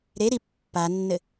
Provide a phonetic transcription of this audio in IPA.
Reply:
ɾ e ɾ i pː a nː ɘ

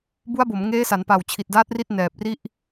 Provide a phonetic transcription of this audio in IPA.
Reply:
b u˦˥ a̯ b o˩˦ m ŋ eː˦˥ s a˩˦ n p a˨˩ w t͡ɕʰ i˨˩ t̚ d aː˦˥ t̚ r i˦˥ t̚ n ɛː˨˩ p̚ r i˥˩ ʔ

